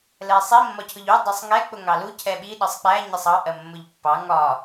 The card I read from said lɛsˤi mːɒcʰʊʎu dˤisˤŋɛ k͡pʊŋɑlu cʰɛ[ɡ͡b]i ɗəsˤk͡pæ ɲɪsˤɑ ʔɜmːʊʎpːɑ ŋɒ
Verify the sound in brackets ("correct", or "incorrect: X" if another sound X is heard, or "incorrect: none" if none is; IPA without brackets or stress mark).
incorrect: ɓ